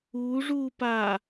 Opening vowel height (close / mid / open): close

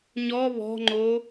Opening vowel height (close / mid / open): mid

